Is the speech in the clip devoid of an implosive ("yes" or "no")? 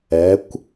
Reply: yes